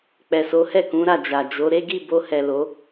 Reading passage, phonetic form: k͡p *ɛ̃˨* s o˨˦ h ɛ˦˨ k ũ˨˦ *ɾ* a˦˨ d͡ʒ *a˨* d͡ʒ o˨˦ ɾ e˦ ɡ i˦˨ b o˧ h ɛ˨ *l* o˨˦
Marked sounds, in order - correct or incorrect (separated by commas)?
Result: incorrect, correct, correct, correct